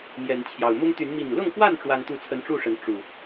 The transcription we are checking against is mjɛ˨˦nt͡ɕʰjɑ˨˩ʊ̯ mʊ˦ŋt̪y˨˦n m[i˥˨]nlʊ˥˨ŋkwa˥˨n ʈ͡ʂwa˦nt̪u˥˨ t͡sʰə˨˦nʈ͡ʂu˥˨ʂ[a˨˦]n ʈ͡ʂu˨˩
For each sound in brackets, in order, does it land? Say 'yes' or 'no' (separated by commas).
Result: no, no